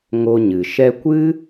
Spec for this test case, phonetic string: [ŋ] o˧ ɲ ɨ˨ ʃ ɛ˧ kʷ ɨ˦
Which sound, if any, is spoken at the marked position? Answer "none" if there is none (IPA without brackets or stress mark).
ŋ